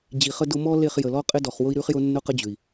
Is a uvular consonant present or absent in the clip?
present